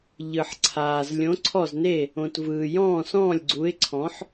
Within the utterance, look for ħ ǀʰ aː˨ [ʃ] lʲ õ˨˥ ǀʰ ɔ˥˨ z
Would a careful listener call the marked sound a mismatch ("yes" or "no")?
yes